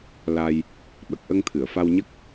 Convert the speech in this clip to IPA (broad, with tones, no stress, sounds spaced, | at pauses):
l a˧ j | ɓ ə˨˩ k̚ ʔ ə˧ ŋ t̪ʰ ɨ˨˩˨ ə̯ f a˧ w ɲ ə˦˥ k̚